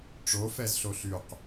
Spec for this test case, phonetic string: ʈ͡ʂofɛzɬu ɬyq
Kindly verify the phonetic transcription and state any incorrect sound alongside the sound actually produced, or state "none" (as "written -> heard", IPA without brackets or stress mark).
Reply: u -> o